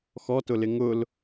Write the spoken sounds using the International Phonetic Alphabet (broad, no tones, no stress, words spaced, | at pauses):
xɔtʊlɪ ŋʊl